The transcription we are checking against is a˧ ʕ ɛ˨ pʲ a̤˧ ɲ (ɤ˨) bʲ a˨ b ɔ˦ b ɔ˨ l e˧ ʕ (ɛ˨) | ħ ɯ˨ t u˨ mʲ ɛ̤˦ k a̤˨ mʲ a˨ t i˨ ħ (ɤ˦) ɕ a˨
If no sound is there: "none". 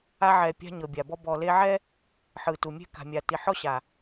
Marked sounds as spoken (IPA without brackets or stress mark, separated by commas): ɤ˨, ɛ˦, ɔ˦